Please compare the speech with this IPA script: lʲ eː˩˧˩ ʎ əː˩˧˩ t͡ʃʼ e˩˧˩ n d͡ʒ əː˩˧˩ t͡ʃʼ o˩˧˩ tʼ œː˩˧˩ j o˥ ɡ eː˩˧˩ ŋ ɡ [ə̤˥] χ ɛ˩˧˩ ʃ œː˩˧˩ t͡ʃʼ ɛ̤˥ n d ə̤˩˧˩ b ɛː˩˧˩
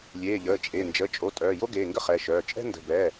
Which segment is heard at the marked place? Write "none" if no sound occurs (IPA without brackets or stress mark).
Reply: ə˥